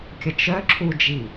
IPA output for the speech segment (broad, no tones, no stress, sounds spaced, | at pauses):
kʲ ə t͡ʃ œ ǁʰ u d͡ʒ i